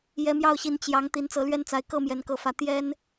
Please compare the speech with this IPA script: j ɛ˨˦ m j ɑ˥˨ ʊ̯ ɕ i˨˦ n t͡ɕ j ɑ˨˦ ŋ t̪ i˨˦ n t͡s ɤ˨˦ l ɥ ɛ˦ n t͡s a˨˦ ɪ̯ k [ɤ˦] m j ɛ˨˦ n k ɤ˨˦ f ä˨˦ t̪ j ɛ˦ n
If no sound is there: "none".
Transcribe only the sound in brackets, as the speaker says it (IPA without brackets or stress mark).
ɤ˦